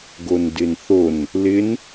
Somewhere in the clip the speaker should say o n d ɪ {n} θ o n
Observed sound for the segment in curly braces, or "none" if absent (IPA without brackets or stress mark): n